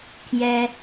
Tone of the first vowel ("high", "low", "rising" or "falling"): high